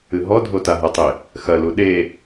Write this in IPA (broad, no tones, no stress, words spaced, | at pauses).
ɨɦɔdʱo taɦɐtˤe | xɐlu ɗe